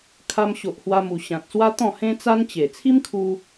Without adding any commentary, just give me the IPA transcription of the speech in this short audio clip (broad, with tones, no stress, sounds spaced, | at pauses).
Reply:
kʰ a˧ m ɕ o˨ ʔ h w a˧ m u˨˩ ɕ ã˨ t̚ s w a˦ t̪ ɔ̃˥˧ h ẽ˦ t͡s a˦ n t͡ɕ e˨˩ t͡sʰ i˦ m kʰ u˧